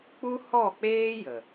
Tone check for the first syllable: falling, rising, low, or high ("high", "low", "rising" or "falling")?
high